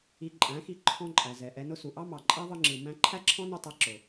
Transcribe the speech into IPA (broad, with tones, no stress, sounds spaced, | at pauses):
i˧ ǃʼ æ̃˨˦ x i˧ ǃʰ ɔ̃˦ ǃʼ æ˨ z ɛ˨ ʔ ɛ˧ n ʊ˦ s u˨ ʔ ɑ˦ m ɑ˨ ǃʼ æ˦ ðˤ ɯ˧ ŋ͡ǁ ɯ˨ m æ̃˧ ǃʰ æ˦ ǁʰ ɔ̃˦ n u˧ tˤ ɛ˨˦ ǁ ʊ˨